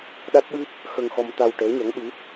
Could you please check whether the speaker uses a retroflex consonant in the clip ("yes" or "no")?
yes